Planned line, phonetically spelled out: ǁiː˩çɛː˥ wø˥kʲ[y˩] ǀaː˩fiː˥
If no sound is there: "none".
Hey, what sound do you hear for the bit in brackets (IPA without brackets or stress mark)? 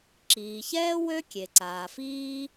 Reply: e˩